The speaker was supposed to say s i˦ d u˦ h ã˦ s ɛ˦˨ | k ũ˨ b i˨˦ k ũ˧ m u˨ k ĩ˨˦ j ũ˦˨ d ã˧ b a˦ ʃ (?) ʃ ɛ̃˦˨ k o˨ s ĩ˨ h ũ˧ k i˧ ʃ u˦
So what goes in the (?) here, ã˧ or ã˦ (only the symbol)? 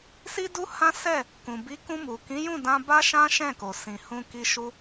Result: ã˦